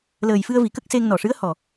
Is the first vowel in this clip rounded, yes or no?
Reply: no